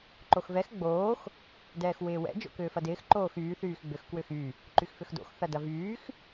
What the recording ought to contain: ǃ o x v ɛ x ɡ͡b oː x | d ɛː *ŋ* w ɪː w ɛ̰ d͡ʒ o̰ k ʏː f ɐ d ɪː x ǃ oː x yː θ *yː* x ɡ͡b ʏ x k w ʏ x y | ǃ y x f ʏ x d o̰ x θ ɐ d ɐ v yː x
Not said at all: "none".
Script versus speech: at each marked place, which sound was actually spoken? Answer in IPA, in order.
x, yː

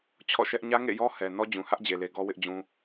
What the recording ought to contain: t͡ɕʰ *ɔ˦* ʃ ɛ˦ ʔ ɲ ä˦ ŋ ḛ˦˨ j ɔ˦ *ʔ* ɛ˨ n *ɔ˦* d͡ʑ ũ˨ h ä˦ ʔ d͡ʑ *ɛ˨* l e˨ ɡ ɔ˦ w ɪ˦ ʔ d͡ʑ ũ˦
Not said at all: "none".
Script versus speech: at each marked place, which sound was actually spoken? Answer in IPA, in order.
ɔ̰˦˨, h, ɔ˦, e˨

